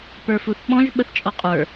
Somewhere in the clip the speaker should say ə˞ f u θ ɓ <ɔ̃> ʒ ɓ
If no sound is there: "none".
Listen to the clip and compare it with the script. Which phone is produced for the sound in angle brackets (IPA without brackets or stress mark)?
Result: ɔ̃